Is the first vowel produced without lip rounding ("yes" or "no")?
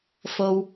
no